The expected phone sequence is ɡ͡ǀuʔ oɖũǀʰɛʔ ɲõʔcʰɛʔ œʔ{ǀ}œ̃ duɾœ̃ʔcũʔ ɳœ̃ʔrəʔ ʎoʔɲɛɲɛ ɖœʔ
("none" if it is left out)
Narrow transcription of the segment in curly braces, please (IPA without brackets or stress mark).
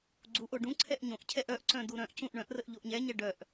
ǀ